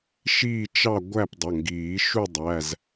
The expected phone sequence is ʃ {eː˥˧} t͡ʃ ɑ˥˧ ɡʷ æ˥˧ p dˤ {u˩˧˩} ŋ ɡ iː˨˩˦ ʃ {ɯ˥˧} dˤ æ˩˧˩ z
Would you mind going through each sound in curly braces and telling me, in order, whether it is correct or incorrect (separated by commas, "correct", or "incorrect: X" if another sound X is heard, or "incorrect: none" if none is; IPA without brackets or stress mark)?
incorrect: iː˥˧, incorrect: ʊ˩˧˩, incorrect: u˥˧